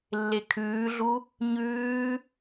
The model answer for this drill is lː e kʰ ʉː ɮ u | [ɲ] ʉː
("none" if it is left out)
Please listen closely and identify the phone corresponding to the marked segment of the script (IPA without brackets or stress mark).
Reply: ɲ